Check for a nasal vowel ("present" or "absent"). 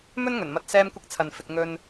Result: absent